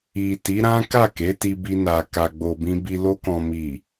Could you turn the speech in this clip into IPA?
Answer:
i˨ ti˨˦ɾã˦ ka˦˨ke˨˦ti˧bi˧ na˨ ka˨ɡ͡bo˨bĩ˧bi˧ lo˧kɔ̃˨mi˨

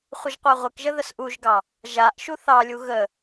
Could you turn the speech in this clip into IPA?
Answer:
χʷəʒqʷaʁʷɘkʒə ðəsʔuʒɡɑ | ʒaʔ ʃuθɑlʲu ɣə

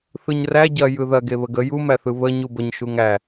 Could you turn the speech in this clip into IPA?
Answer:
θɯɲræ ɟɐ jɯðɐ ɡeβəɡə jumæθɯ βə ɲubəɲ ʃuŋæ

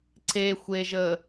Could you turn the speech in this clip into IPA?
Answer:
ǀexʷeʒəː

